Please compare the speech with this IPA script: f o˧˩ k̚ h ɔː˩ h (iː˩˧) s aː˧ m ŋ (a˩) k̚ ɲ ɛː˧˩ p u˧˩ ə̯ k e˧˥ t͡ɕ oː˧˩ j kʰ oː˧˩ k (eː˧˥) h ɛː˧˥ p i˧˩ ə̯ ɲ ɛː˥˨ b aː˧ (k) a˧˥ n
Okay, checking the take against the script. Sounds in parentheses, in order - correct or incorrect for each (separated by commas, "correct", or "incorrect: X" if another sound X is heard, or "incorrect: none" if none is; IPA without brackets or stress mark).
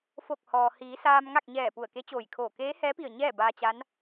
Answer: correct, incorrect: a˥˨, correct, incorrect: t͡ɕ